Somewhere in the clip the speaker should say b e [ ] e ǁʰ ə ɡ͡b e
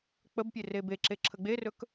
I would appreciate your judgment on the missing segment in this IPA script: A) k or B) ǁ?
B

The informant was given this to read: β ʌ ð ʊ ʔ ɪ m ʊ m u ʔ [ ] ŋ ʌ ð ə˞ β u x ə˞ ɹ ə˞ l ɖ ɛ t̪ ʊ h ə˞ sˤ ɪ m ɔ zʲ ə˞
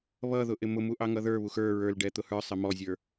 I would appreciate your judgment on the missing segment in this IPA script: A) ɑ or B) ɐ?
A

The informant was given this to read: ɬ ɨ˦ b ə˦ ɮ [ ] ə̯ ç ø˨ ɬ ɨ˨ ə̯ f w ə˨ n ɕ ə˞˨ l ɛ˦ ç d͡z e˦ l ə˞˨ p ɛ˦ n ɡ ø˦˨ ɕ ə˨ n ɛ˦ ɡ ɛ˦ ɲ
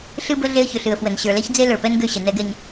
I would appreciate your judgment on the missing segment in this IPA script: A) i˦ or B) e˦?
B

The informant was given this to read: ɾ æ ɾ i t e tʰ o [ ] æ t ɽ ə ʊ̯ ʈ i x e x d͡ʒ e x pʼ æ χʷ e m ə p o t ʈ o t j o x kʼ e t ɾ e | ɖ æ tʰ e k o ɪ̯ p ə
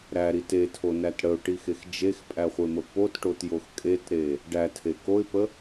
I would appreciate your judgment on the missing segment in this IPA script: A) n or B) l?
A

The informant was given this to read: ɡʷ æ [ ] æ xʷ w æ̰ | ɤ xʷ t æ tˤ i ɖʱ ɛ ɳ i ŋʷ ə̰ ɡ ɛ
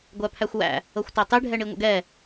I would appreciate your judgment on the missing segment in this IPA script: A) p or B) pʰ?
B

